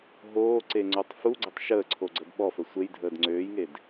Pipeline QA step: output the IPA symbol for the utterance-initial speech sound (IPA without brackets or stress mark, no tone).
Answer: ɦ